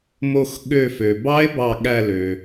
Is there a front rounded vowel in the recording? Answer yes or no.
yes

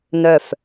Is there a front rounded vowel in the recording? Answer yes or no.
yes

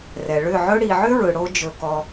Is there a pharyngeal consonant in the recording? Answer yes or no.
yes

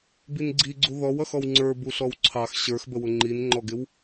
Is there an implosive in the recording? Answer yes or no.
no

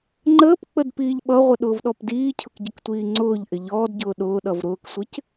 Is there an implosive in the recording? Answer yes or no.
yes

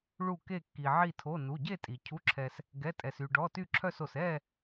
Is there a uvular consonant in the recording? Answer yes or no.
no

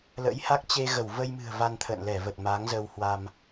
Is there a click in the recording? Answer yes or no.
no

